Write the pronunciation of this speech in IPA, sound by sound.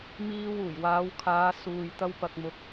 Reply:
miː˧wuː˨˩jwaː˨˧wkʰaː˨˧ suː˨j t̪ɐ˧wpɐ˨k̚mʊ˨˥k̚

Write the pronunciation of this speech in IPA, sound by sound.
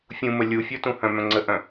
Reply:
fʲũmə lʲufʲɔ tũhœ̃mœ̃ ŋ͡ǀəʔœ̃

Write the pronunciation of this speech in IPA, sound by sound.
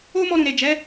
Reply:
o˦mɔ˧ ɾũ˨ɾe˨d͡ʒɛ˨˦

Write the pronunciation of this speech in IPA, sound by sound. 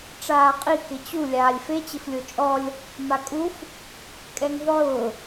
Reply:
ʈ͡ʂaːqʼi kɪt͡ɕu lʲaːlʲfe t͡ɕɪflʲot͡ʃʼɔlʲ | makʼuf | kʼɛŋðˤʊː

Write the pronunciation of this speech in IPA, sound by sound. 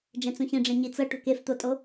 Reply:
d͡ʒɛ̃t͡sũçĩɖ͡ʐẽ ɲit͡sɤ ʈo̤keft̪otʼo

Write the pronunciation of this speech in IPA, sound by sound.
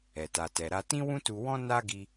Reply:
ɛ˨ta˨tɛ˨ɾa˧ tĩ˦wũ˦tu˧wɔ̃˦ na˦ɡi˧

